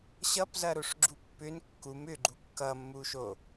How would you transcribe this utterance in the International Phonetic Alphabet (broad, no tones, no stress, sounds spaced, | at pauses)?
ɕ ʌ p z ɐ ɾ o ʂ ɡ͡ǁ u pː ʏ n kː u m ʏ ɡ͡ǃ u kː ʌ mː u ʃ o